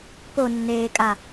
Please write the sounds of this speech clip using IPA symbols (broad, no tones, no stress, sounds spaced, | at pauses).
p o nː eː kʼ a